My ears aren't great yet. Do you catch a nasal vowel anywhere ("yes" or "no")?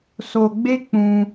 yes